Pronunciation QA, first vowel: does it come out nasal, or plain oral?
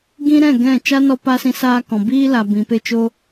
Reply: nasal